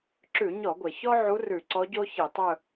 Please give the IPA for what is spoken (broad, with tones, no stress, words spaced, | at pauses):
ǁʉ˧˩˧ɲɔ˧˩˧ɡʷɛ˩ çɔ˥ʕu˧˥ rʉ˧˩˧ǀɔ˧˥ɟo˥ çi˧˩˧tˤɵ˥˧